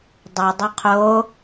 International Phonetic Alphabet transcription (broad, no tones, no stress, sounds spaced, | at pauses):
dˤ ʏ dˤ ʏ qʰ o